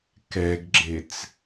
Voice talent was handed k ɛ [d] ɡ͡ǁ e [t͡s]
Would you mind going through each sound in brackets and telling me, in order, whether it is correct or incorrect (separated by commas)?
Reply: incorrect, correct